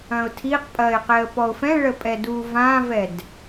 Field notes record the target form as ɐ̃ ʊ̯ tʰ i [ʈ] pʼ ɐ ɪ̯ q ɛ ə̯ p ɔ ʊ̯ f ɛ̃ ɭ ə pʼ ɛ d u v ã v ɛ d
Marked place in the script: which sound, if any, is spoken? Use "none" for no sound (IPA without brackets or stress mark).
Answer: q